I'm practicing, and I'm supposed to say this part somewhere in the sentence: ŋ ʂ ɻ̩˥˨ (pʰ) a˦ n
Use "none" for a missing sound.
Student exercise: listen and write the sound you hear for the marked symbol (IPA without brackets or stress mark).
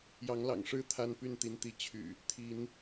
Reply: t̪ʰ